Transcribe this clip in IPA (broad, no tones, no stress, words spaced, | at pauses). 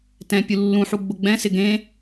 tɛ̃pʲu lːũħuɡ͡bʊ ɡ͡bɛ̃sɪ ɡẽ